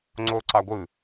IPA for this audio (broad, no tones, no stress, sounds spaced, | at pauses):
ŋ͡ǀ o ǀ ɑ ɡʷ ɯ